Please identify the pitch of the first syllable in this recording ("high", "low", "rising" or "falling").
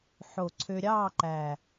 low